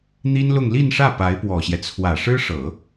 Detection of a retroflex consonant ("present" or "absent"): present